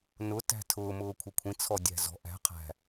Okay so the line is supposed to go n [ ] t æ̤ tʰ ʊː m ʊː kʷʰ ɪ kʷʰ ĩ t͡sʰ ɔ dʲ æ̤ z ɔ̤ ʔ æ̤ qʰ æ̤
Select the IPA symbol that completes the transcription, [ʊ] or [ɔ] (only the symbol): ʊ